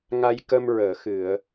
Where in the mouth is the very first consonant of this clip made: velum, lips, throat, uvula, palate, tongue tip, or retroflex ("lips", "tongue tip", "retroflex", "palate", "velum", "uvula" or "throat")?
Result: velum